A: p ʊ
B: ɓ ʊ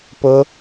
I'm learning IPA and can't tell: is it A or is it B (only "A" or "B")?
A